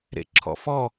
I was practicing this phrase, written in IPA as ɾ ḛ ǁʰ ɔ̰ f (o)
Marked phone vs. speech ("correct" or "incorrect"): incorrect